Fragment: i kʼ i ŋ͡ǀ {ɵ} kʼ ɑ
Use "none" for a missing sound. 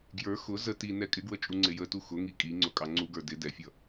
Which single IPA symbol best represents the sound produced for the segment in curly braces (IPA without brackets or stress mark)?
ʊ